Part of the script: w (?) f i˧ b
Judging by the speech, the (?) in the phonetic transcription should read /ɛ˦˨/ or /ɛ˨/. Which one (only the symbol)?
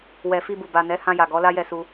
ɛ˨